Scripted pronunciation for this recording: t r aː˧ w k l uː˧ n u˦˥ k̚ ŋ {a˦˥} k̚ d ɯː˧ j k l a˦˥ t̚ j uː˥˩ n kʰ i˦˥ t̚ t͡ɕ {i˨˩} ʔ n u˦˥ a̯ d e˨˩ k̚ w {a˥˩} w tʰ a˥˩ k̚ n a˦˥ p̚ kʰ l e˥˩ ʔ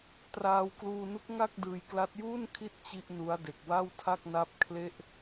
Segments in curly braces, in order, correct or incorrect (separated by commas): incorrect, incorrect, correct